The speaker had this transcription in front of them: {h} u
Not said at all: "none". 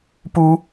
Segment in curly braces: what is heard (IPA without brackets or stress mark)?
p